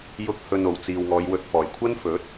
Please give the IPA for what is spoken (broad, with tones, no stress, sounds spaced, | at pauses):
j ʊ˧ k̚ h ɵ˨ n o˨˩ w t͡s iː˨ w ŋ ɔː˨˧ j w ɵ˨ t̚ f ɔː˨˩ j kʷʰ ɐ˥ n f ɵ˨˥ t̚